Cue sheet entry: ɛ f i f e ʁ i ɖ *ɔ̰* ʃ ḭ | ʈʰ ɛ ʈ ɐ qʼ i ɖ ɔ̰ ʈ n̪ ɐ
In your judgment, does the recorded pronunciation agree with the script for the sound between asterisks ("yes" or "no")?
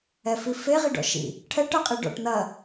yes